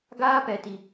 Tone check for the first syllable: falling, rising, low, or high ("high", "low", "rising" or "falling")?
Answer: high